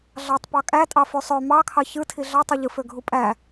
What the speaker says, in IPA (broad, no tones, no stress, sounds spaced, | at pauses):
ɮ ɑ tˤ p ɑ kʼ æ tʼ ɑ f y sˤ ø m ɑ kʰ ɑ ç ɯ tʰ i ɮ ɑ tˤ ɯ ʎ ɯ f ø ɡʱ u pʼ æ